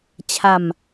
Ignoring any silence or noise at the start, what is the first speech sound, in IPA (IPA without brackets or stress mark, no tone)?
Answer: t͡ɕʰ